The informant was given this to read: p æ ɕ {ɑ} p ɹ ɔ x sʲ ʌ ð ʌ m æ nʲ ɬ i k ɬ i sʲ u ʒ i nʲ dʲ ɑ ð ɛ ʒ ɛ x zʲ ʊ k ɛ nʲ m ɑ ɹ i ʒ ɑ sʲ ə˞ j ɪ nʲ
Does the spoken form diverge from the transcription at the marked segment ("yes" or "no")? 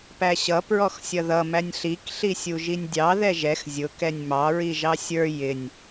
yes